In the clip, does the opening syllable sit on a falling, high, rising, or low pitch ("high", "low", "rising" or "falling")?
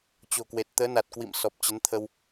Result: low